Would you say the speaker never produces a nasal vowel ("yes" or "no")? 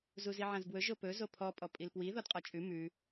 no